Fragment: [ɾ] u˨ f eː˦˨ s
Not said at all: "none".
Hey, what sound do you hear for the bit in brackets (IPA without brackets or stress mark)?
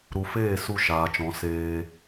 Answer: ɾ